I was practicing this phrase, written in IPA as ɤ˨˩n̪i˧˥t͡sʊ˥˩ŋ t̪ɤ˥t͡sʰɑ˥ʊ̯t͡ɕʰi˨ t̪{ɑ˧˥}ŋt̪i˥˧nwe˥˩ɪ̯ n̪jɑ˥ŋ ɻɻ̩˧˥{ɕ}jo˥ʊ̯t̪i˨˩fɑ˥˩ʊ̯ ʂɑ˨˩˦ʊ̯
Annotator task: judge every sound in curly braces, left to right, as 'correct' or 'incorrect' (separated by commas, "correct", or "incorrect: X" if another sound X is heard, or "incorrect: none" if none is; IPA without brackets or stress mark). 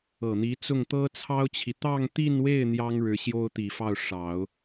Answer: incorrect: ɑ˥˧, correct